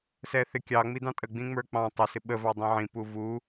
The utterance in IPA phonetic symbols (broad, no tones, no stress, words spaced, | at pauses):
sɛθɪ kʲɑ ŋ͡midɑ̃tʼə ɡ͡bĩŋ͡mə˞k͡pɑ̃ tˤɪ sɪɓə vɑdˤĩʕĩ puvu